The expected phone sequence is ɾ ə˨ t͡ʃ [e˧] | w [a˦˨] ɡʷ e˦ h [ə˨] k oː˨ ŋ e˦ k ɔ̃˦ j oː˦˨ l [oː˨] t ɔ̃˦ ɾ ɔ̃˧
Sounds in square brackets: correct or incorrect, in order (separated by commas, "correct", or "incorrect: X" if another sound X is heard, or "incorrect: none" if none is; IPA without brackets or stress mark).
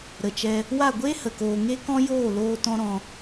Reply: incorrect: ɛ˧, correct, correct, incorrect: oː˦